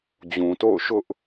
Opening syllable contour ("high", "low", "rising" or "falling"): low